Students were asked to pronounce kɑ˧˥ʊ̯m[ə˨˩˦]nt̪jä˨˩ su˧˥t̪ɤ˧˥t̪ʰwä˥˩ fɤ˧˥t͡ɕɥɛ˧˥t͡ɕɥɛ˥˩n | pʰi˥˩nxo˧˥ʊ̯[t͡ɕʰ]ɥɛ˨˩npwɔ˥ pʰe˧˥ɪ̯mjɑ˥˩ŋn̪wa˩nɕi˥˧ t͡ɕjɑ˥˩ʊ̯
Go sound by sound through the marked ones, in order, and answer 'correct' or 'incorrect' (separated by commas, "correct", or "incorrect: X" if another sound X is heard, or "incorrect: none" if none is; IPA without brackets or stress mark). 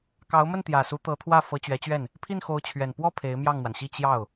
incorrect: ə˥˩, correct